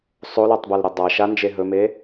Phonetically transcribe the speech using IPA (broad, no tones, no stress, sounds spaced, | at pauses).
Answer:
sˤ o l ɔ tˤ b a l ɾ ɵ dˤ a ʃ a n d͡ʒ e ɦ ɵ m e